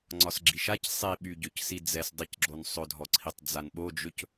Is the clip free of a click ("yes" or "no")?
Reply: no